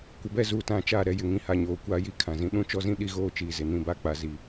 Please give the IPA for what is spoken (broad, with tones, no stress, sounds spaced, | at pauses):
kʷ ɪ˨ b ɛ˦˨ z uː˨ t ã˨ t͡ʃ a˦˨ ɾ ɛ˦ j ɪ˨ ŋ ĩ˨ h a˨ ɲ oː˨ kʷ a˦ j i˦ kʰ ã˨ z ĩ˨ ɗ ũ˦ t͡ʃ ɔ˦ z ĩ˦ ɗ i˦ ɣ oː˦ t͡ʃ iː˨ z ɪ˨ n ĩ˦˨ b a˦ k͡p a˦ z i˦